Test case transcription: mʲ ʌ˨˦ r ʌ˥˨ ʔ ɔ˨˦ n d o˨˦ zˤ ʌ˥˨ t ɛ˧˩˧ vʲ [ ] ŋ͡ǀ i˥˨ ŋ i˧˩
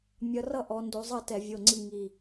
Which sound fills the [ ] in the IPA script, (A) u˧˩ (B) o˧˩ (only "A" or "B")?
B